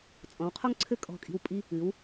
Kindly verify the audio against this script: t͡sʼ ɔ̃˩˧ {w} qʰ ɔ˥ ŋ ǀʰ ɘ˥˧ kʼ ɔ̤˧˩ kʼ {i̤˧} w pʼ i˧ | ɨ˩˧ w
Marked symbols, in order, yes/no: yes, yes

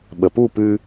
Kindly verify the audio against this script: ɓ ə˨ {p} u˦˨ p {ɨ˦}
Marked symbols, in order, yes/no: yes, yes

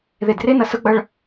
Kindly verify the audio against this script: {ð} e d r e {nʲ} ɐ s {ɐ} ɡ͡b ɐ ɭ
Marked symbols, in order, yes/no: yes, no, no

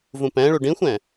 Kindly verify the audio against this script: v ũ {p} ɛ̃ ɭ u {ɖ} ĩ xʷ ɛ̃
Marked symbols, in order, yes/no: yes, yes

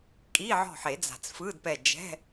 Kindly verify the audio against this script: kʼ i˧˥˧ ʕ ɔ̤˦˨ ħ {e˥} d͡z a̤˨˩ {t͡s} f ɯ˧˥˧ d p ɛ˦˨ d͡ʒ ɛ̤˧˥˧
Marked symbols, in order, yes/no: no, yes

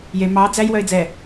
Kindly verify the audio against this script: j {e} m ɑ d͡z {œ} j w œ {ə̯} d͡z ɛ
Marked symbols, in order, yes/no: yes, no, no

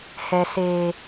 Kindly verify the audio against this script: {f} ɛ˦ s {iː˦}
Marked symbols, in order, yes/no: no, no

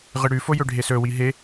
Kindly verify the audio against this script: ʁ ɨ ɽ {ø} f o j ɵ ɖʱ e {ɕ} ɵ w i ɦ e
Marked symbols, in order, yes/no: no, no

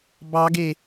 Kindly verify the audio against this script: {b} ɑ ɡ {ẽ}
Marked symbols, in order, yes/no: yes, no

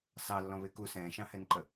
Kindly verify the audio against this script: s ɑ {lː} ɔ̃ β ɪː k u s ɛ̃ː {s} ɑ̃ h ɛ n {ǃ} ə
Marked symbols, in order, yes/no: yes, no, yes

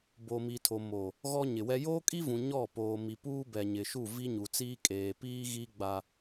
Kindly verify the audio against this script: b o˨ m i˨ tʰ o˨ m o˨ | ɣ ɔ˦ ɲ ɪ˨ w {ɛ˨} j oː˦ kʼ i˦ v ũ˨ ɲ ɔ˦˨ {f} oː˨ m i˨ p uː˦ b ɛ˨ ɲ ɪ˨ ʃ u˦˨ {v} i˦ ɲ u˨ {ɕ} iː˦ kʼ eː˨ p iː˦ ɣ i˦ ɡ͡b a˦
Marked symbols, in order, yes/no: no, no, yes, no

